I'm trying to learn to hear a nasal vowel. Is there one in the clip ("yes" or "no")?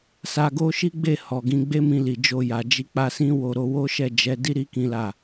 yes